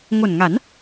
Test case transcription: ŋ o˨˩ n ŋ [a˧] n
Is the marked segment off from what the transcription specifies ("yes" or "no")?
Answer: yes